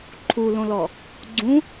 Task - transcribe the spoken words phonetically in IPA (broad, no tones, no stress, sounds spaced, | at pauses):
ǃʰ u l õ l ɔ | ɡ͡ǀ ũ